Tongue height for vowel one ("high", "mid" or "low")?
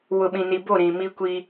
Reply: high